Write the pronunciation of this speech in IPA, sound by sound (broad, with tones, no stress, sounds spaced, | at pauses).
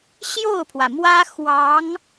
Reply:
ɕ j o˥˩ ʊ̯ pʰ w ä˩ m w ä˥ x w ɑ˧˥ ŋ